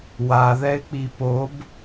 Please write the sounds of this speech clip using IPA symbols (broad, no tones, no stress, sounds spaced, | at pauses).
w a ð ɛ ɪ̯ k͡p i p o b